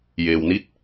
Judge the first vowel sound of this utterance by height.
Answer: mid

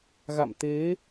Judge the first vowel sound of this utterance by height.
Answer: low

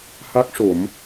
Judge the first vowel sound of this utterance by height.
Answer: low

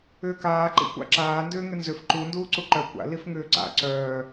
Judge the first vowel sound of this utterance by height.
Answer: high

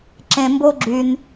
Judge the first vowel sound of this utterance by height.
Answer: mid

